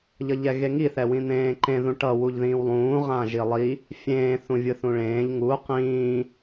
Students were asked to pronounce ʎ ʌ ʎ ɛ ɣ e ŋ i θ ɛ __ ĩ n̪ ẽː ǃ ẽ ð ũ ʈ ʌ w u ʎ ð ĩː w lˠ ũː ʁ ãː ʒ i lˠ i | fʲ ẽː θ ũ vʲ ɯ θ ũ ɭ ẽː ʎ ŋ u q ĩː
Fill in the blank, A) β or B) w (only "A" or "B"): B